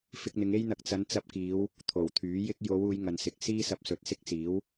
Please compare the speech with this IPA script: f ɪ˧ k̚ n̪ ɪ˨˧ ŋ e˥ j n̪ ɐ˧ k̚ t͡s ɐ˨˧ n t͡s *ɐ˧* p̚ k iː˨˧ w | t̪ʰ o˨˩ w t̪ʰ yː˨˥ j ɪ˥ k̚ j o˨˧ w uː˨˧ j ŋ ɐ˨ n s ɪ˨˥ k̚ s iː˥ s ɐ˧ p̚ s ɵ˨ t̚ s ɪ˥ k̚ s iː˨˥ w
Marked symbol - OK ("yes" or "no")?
yes